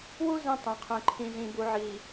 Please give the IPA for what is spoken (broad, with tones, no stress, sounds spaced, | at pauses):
w u˦ z ĩ˦ tˤ ɛ̃˨ qʰ ɛ̃˨ ǃʰ ĩ˨ z ĩ˨ b u˨ ʕ i˨